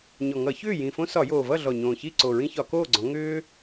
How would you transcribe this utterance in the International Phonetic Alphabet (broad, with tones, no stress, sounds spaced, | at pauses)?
ɲ ɔ˨˩ ŋ ʌ˧˩˧ ç ʏː˥˨ j ĩ˨˩ f õ˦ s ɒ˧˩˧ j oː˨˩ v ʌ˥˨ ɮ ɔ˨˩ ɲ õː˨˩ ç i˥˨ ǀ o˨˩ ɹ ĩ˦ ç ɒ˧˩˧ k oː˥˨ ɡ͡ǀ ɔ̃˩˧ ŋ ʏː˦